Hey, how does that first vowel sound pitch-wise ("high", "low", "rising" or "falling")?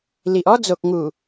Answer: low